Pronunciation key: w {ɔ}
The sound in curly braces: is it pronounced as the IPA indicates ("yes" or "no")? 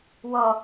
no